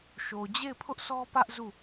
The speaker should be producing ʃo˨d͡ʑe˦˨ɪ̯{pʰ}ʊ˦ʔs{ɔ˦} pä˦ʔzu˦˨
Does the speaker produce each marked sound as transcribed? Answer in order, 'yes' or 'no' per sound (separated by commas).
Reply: yes, yes